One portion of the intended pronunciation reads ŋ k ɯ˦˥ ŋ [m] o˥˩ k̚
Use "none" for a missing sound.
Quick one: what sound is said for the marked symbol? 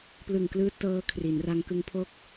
pʰ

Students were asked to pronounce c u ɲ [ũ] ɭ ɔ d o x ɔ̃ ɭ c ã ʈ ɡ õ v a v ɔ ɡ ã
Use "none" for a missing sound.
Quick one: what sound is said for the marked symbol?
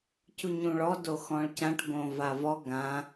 ũ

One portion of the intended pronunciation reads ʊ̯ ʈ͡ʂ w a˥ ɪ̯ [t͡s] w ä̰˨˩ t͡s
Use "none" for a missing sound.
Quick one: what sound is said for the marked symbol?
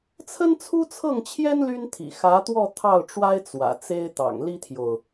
t͡s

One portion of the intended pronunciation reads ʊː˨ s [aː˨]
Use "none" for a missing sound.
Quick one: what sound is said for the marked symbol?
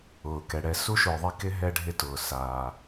aː˨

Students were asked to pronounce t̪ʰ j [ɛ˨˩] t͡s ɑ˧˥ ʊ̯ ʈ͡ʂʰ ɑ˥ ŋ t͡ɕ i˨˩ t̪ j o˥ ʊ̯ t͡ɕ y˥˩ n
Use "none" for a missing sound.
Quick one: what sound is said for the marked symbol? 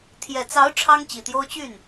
ɛ˨˩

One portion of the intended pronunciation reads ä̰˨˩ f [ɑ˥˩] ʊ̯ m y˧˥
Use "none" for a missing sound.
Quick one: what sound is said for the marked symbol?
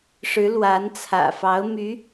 ɑ˧˥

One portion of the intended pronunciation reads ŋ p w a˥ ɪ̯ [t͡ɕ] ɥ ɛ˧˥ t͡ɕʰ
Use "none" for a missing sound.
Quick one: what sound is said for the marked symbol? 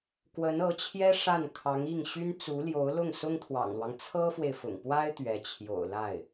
t̪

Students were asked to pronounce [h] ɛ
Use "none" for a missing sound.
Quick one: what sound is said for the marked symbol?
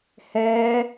h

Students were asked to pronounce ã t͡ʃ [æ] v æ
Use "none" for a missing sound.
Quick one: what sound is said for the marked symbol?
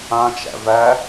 æ̰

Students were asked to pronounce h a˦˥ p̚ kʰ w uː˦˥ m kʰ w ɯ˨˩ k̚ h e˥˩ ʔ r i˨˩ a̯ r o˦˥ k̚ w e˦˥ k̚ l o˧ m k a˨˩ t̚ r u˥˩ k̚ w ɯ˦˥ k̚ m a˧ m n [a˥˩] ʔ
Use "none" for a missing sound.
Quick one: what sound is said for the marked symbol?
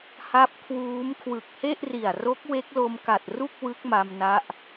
a˦˥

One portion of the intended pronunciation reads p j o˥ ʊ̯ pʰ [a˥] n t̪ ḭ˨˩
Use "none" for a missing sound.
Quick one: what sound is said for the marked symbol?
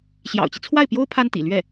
a˥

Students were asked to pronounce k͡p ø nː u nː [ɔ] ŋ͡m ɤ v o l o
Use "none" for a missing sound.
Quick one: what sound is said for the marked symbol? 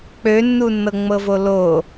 ɤ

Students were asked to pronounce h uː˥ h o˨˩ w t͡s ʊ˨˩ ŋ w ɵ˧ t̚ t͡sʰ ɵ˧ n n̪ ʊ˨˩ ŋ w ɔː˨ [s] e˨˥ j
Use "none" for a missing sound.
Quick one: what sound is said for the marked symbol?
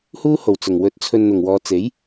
t͡s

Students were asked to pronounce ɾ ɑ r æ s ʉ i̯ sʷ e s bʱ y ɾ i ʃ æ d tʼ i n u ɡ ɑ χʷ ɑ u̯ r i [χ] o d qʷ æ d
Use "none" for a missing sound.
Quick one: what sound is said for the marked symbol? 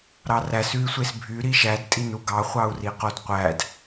q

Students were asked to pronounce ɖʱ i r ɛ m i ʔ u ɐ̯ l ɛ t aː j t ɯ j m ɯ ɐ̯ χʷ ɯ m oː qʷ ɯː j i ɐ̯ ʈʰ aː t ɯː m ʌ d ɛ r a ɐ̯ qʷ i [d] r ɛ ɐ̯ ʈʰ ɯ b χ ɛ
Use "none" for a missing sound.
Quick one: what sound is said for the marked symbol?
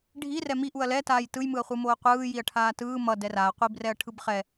b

